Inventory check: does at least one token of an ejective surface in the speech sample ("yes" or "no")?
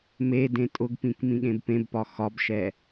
yes